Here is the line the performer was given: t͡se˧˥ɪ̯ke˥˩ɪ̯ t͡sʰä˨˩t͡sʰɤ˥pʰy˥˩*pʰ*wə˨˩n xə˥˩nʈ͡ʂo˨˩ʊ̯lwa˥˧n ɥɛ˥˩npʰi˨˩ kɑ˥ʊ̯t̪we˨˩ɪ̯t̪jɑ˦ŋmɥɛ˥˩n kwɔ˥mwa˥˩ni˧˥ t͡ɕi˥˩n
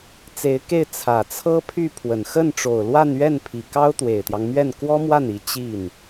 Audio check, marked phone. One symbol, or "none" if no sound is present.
pʰ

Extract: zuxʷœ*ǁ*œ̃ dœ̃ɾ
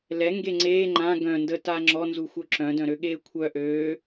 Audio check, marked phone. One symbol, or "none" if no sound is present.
ǁ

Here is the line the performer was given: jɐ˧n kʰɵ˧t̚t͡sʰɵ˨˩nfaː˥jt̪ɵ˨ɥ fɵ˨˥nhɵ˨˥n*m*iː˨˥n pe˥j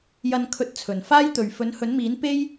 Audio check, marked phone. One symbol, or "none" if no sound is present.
m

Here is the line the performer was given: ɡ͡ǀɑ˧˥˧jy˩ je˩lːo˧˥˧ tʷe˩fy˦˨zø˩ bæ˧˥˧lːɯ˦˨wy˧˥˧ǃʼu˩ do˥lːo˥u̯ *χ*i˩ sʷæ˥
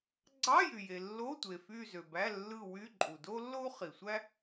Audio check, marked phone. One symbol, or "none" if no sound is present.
χ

